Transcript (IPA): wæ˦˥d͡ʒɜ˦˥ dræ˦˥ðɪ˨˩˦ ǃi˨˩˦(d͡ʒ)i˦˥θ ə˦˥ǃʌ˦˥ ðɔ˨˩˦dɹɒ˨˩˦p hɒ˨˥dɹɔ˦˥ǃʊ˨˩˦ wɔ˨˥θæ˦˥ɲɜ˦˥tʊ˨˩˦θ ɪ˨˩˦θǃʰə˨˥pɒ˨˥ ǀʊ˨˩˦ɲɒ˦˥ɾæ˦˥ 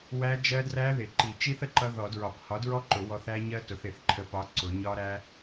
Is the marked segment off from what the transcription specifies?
yes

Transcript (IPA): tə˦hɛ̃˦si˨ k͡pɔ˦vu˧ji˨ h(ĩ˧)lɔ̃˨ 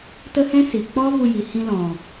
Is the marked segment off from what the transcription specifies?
no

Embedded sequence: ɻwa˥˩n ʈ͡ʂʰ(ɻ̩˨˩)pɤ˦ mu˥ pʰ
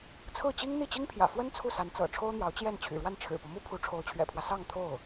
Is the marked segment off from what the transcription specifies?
no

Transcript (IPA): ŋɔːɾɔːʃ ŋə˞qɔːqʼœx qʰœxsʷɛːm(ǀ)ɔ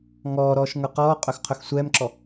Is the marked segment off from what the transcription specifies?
yes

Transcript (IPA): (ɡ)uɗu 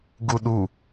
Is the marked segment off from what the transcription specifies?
no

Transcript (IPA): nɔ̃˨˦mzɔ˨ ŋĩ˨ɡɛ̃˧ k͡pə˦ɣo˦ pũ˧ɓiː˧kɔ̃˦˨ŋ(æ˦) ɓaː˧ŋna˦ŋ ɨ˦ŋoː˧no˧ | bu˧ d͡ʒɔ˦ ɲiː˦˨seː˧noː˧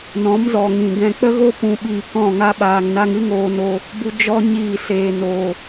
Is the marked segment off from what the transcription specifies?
yes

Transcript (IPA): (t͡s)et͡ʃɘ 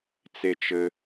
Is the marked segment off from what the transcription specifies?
no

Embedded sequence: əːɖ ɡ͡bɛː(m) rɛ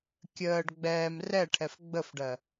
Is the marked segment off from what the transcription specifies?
no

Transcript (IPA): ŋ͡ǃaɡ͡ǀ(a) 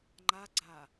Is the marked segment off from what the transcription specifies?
no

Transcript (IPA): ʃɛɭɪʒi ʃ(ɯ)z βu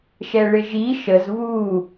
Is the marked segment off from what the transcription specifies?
yes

